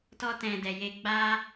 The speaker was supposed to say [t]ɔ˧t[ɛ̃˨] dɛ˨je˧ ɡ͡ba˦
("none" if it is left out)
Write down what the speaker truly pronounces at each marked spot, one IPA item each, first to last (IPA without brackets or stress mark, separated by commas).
t, ɛ̃˨